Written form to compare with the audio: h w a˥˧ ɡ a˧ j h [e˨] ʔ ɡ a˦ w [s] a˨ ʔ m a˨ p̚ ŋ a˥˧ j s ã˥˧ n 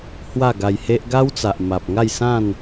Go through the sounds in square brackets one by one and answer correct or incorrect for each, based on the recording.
incorrect: e˦, incorrect: t͡s

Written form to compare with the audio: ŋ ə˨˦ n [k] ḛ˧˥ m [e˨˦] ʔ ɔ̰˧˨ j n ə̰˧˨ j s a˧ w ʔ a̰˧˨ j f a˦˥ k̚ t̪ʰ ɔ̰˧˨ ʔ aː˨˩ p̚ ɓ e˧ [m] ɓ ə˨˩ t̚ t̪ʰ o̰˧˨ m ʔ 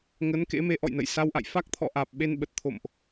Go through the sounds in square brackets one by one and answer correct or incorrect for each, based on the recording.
correct, correct, incorrect: n

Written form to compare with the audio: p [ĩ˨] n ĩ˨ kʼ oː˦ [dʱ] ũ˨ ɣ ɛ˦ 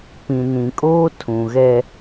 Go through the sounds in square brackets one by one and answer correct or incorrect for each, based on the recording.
correct, incorrect: tʰ

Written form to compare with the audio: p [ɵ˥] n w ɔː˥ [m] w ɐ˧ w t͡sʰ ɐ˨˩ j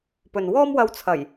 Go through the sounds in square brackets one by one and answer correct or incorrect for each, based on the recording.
incorrect: ɵ˨, correct

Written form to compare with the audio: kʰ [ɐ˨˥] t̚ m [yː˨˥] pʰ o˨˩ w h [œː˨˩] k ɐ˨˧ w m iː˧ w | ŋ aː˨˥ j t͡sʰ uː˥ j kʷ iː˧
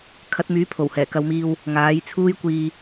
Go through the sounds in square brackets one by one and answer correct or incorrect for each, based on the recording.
correct, correct, incorrect: ɛː˨˩

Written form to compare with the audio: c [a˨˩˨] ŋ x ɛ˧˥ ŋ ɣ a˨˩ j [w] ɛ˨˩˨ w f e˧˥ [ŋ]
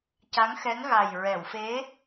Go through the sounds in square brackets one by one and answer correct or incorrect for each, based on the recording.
incorrect: a˧˥, incorrect: ɹ, incorrect: none

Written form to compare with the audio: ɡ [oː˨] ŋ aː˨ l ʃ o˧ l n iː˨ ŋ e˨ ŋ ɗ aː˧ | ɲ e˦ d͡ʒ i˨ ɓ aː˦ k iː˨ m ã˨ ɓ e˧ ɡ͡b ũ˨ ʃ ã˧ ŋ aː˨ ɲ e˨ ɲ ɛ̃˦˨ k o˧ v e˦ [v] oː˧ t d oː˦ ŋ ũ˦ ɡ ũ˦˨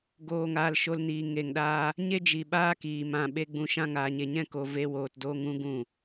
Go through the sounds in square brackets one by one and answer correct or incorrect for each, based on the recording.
correct, incorrect: w

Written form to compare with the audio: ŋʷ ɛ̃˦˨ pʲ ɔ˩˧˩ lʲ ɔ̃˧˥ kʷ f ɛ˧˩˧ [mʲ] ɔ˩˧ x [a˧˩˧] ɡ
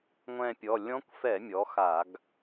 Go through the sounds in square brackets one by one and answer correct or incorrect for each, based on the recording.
correct, correct

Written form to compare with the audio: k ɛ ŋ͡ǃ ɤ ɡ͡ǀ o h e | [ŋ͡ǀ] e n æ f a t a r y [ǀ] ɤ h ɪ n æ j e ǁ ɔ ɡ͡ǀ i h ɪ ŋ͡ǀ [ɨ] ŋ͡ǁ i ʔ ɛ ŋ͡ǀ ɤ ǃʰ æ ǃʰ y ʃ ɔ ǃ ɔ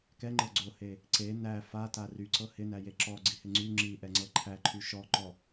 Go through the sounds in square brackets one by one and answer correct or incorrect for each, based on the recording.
incorrect: ǀ, correct, incorrect: y

